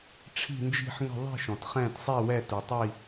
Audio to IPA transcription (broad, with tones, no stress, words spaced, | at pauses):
ʈ͡ʂʰi̤˥˧nd͡ʒi̤˥˧ħŋə̤˥˧ ðˤi̤˥˧ʃɔ̃˨tχɛ̃˥˧t sˤi˥˧wɛ˥˧tu˨tˤi˥˧